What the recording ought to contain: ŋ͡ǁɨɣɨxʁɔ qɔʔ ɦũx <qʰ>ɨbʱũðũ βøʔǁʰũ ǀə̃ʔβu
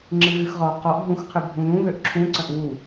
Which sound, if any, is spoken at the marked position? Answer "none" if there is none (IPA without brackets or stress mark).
qʰ